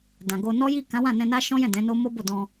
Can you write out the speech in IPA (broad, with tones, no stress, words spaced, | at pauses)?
dã˨ɡo˧ nɔ˦ji˦˨ kã˨˦wã˦˨nɛ̃˧ na˦ʃɔ̃˦jɛ̃˦˨ dɛ̃˨˦no˦ mo˦bo˦˨ dɔ̃˧